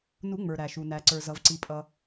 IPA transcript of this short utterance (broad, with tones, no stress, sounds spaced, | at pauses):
n u˨˩˦ ŋ͡m ə˞˩ ɾ æ˩ ʃ u˩ n æ˩ ǀ ə˞˩ z ʌ˩ v ǀ i˩ pʼ ʌ˩